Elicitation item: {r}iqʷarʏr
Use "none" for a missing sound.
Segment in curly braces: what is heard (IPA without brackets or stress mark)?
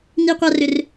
n